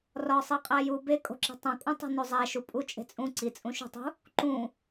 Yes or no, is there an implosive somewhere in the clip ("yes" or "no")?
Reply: no